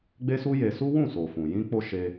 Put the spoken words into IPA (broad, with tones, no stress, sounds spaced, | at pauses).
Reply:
ɡ͡b e˦ s u˦ j e˧ s u˦ w ũ˦˨ s o˨ f ũ˨ j ĩ˧ k͡p o˧ ʃ e˦